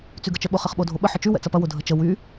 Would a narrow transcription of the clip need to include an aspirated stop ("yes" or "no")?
no